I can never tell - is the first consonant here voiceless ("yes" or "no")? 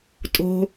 yes